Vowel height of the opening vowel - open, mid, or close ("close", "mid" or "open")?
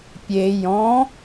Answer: mid